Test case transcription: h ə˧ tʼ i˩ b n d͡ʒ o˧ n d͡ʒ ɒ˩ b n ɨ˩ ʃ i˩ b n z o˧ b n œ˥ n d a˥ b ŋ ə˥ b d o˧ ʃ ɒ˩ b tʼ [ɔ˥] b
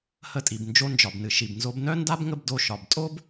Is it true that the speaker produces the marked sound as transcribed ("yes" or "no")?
no